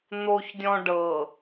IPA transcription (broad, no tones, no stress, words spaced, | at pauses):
n̪oçdʲɔ̃ ɖɤ